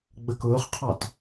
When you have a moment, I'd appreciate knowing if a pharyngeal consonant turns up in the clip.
no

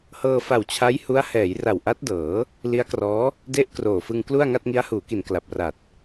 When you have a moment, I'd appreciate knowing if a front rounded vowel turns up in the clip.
no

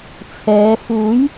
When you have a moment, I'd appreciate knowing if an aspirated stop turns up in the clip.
yes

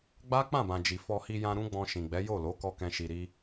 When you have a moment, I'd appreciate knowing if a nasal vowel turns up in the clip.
yes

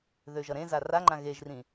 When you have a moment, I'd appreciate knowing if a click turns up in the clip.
yes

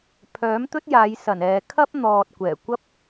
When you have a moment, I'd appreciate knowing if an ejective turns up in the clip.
no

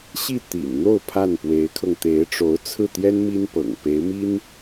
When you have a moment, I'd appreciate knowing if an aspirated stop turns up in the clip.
yes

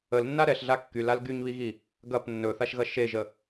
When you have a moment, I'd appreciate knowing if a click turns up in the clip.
no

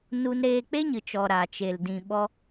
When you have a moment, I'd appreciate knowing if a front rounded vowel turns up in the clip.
no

